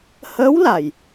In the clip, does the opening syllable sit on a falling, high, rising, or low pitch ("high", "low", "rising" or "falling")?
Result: rising